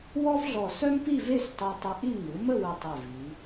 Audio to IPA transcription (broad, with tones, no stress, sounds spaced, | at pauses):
w ɔ˥ v ɮ ɔ˧˩ s œ˥ m p i˥˧ v e˥˧ s tˤ e˧ tˤ ə˧ ʔ i˥˧ ŋ ɯ˩˧ m ə˥˧ w ɯ˧˩ tˤ e˧˩ v i˩˧